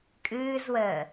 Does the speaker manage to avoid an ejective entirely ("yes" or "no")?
no